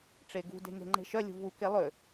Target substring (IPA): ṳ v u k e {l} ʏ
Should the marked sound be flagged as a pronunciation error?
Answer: yes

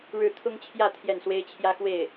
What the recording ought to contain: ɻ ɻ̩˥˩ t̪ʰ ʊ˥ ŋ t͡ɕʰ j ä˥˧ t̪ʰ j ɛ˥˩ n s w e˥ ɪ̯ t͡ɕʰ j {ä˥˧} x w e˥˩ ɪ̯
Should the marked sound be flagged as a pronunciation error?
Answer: yes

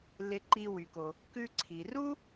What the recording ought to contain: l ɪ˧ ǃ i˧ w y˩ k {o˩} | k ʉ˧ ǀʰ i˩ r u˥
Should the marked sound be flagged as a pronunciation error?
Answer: no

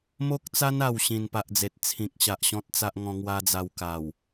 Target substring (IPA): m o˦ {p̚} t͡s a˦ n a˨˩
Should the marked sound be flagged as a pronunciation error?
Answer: yes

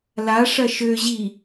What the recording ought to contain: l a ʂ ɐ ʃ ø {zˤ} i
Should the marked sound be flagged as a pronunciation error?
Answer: yes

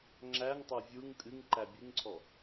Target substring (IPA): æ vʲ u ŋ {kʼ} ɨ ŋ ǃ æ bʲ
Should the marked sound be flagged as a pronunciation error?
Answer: no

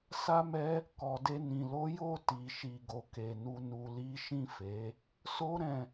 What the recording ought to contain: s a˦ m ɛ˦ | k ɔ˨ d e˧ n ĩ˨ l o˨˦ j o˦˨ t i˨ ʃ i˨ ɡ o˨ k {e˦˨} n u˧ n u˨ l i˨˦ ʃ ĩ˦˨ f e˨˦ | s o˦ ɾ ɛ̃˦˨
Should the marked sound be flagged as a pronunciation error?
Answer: yes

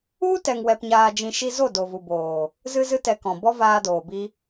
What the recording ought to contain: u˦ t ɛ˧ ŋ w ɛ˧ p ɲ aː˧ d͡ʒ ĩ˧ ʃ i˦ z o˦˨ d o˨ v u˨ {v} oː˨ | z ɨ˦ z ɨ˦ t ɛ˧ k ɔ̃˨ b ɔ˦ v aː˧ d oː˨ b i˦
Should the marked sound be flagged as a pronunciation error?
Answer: yes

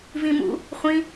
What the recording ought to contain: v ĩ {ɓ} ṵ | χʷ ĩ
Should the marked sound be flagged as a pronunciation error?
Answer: yes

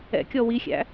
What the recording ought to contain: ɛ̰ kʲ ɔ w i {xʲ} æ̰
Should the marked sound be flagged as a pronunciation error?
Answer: no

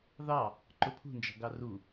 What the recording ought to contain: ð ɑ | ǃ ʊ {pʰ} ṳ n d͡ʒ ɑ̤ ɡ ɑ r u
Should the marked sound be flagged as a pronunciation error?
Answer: no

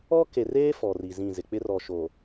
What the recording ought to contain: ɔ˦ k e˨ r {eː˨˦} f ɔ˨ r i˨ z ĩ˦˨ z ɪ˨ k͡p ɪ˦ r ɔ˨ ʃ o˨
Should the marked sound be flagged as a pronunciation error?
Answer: yes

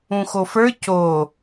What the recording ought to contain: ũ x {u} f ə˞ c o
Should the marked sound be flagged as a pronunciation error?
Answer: yes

